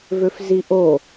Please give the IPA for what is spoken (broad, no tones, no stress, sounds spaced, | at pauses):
v ø f z i ʔ o